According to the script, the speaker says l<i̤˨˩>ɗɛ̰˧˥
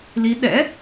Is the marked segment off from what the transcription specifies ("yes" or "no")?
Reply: yes